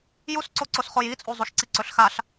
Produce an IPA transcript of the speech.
j u s ǀ o ǀ o s χ o j i t͡sʼ u zˤ u ʃ ǀ i ǀ ɵ ɬ x a ɬ

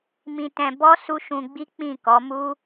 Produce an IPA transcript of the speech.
m ĩ˧ t ɛ̃˧ b ɔ˦ s u˦ ʃ ũ˧ ɡ͡b i˦ k͡p ĩ˦˨ k ɔ˨˦ m u˦

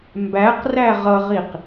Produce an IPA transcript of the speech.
m b æ q r æ ʁ ʌ ʁ i q

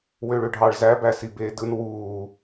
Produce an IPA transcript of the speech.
w ø ɭ ø ɖʱ ɑ ɭ z æ b æ s i b eː d ɯ n w uː

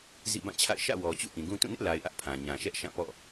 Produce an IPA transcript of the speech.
z ḭ˦˨ b ã˦˨ t͡ɕʰ a̰˦˨ ɪ̯ ʃ ä̰˦˨ w ɔ˨ t͡ɕ ṵ˦˨ ʔ ĩ˨ ɡ ũ˦ t ũ˦˨ n ɪ˦ ʔ l a˨ ɪ̯ ʔ ä˦ ʔ pʰ ã˨ ɲ ã˨ ʃ ɛ˦ ʔ ʃ ã˦˨ p ɔ̰˦˨

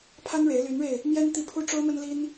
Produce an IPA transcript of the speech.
pʰ a˥ n ɻ e˧˥ ɪ̯ l y˧˥ n ɻ e˧ ɪ̯ | m j ɛ˥ n t̪ i˥˩ pʰ u˥ ʈ͡ʂ o˥ ʊ̯ m ə˥ n l i˥ n

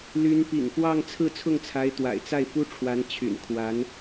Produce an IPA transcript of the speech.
l y˧˥ n p ḭ˨˩ ŋ f w ɑ˥˧ ŋ t͡sʰ ɹ̩˥˧ t͡sʰ ʊ˥˩ ŋ t͡sʰ a˧˥ ɪ̯ t̪ w a̰˨˩ ɪ̯ t͡s a˥˩ ɪ̯ f u˥ ʈ͡ʂʰ w a˧˥ n t͡ɕʰ y̰˨˩ n kʰ w a˧˥ n

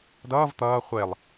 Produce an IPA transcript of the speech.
d ʌː v t̪ ʌː χʷ e lˠ

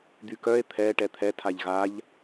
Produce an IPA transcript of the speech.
d̪ y k œ e̯ t̪ʰ ɛ ʈ ɛ t̪ʰ ɛ tʰ a ʎ ɣ a ʎ

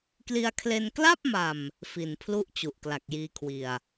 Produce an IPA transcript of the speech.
k l i˧ a̯ kʰ l e˧ n k l a˥˩ p̚ m a˨˩ m | f i˨˩ n pʰ l u˥˩ ʔ t͡ɕ u˨˩ ʔ k l a˨˩ k̚ j iː˧ kʰ w i˨˩ a̯

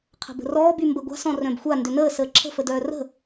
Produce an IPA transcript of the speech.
qʰ ə̤ b ə̤ r ɔː b y m b ə ɡʷ a̤ s ɔ̃ r œ̃ b xʷ a n d ʏ n əː s əː ǁʰ ə̤ f ə d œː r ə̤

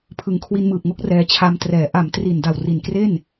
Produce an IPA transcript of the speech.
pʰ ɯ˨˩ ŋ kʰ w i˧ n m ɯː˨˩ p̚ ŋ o˦˥ k̚ r ɛː˧ t͡ɕʰ a˧ m t r ɛː˨˩ ʔ a˩˦ m t r i˨˩ n d a˨˩ w r i˨˩ n k r e˥˩ n

